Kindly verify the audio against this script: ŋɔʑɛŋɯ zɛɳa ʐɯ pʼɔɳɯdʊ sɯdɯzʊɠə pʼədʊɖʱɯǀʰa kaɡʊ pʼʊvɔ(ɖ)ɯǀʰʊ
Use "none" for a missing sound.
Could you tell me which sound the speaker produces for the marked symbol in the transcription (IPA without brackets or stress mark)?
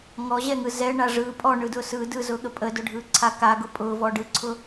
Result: ɖ